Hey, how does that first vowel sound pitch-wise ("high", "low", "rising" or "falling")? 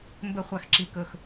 falling